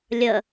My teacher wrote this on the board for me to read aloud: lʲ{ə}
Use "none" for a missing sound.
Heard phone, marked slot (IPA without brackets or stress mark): ə